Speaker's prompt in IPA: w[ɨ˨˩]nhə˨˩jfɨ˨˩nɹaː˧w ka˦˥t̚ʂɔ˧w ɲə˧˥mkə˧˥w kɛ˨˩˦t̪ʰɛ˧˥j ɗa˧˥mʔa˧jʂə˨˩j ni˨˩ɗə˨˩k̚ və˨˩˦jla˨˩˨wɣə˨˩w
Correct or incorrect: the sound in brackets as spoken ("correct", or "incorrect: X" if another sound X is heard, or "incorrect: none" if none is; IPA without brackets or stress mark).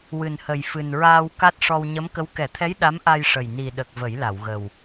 correct